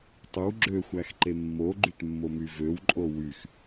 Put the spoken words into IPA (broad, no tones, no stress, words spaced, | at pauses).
tˤɯw ɡ͡ǁøxʷæxǃe mːoɡ͡ǃytmːomy vøwǃʼo wyx